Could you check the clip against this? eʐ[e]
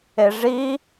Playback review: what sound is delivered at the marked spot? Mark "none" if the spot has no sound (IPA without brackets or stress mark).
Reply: i